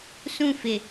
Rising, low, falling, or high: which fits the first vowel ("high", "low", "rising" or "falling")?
falling